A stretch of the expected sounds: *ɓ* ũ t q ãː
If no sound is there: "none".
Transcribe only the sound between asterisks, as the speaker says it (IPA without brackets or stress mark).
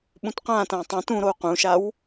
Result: ɓ